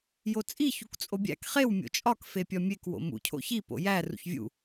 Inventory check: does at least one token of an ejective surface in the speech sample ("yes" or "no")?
yes